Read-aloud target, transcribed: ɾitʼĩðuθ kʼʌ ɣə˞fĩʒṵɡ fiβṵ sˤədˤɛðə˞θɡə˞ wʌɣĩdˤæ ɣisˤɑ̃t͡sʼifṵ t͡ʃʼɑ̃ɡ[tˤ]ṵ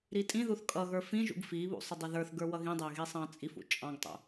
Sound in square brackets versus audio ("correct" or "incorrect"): correct